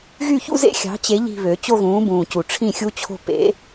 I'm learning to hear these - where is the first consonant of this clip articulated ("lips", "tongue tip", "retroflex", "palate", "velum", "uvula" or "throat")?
velum